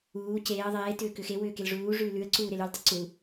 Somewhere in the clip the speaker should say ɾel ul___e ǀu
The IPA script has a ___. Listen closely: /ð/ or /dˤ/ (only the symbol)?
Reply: dˤ